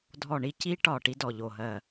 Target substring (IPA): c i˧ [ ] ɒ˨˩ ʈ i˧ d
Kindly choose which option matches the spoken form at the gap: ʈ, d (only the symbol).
ʈ